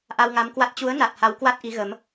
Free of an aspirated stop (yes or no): yes